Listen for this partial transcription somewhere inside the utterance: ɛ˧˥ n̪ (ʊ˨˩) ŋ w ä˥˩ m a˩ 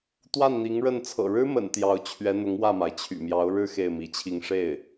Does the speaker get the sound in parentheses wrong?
yes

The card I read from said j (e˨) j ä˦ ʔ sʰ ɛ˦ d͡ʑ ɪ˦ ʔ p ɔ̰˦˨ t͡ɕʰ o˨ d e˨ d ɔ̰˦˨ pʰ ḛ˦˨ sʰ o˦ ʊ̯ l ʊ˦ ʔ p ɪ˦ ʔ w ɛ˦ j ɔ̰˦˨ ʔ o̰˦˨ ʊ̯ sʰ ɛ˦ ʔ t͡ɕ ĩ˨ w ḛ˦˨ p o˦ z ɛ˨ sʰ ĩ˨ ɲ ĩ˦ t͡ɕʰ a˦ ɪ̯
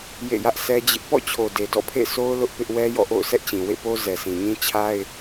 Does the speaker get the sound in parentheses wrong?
yes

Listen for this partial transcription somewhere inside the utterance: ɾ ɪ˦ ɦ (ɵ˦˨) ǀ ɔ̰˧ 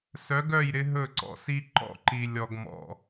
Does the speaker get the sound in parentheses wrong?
no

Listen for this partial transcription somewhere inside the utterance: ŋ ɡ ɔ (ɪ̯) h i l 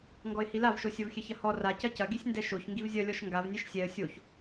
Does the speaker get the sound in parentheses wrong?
no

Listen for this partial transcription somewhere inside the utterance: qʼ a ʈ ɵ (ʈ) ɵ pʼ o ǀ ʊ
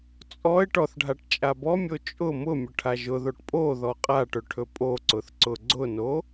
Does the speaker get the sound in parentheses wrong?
yes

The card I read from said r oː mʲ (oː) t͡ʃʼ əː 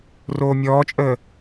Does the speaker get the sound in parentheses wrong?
yes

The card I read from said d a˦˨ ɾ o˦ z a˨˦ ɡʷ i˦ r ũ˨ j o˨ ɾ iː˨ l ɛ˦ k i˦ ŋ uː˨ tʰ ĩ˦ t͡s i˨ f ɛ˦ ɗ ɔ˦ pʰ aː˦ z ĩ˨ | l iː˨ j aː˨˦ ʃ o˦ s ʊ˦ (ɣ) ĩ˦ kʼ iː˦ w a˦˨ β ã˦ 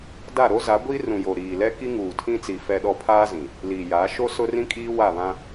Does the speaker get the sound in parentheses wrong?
yes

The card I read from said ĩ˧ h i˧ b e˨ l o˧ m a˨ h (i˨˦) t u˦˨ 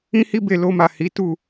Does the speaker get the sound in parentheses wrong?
no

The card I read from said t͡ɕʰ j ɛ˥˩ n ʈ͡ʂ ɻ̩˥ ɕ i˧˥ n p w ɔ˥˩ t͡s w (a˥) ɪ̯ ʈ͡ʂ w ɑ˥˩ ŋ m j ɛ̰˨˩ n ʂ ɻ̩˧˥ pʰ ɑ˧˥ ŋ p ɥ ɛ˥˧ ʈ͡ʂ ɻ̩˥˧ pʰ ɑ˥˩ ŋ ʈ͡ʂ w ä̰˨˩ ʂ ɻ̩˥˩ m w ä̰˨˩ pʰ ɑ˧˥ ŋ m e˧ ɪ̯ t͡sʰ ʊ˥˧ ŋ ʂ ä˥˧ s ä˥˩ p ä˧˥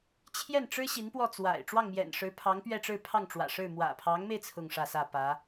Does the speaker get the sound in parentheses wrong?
yes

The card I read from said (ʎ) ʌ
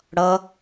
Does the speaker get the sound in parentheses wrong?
yes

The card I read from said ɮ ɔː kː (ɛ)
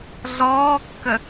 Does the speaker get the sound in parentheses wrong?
yes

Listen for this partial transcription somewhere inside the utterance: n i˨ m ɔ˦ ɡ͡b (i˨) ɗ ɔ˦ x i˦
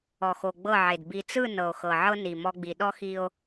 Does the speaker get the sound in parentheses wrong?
no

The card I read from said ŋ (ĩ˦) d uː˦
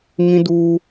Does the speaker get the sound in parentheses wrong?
no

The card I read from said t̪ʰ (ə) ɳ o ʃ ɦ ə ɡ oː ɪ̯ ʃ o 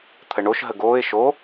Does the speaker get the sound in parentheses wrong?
no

